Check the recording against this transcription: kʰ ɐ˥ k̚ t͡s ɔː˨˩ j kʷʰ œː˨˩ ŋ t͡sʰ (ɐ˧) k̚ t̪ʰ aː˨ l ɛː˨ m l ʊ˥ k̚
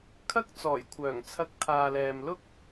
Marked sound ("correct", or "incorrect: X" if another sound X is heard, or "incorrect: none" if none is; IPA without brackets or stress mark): correct